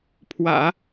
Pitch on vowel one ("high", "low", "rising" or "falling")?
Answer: low